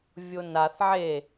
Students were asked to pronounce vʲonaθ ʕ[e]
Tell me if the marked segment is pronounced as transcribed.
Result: yes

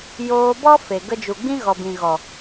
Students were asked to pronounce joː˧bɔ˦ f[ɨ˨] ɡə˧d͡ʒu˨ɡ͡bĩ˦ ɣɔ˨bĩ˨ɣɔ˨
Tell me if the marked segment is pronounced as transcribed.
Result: no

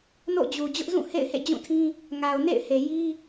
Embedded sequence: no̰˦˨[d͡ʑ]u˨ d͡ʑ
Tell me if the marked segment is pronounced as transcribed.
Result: yes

